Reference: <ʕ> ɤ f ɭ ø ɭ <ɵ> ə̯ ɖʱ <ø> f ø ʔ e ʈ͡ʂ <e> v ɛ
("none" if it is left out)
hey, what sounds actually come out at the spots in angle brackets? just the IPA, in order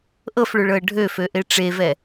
ʔ, ɤ, ø, e

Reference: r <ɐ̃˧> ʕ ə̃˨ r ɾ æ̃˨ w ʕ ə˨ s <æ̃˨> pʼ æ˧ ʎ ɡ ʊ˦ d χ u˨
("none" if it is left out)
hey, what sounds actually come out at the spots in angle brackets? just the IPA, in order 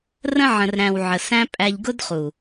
ə̃˧, æ̃˦

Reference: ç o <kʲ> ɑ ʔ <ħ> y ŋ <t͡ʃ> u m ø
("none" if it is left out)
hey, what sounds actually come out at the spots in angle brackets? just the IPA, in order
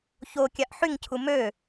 kʲ, ħ, cʰ

